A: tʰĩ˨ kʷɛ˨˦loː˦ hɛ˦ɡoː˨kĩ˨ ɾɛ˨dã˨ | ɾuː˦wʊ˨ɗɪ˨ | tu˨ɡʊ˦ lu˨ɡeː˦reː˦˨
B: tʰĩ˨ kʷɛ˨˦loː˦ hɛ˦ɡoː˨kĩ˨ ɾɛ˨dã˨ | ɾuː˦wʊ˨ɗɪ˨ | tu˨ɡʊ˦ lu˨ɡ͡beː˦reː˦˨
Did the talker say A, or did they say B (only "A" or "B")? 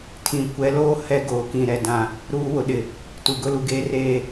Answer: A